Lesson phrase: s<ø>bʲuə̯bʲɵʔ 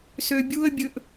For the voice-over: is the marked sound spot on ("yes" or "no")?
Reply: yes